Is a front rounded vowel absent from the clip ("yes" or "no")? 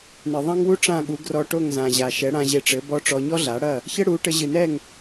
yes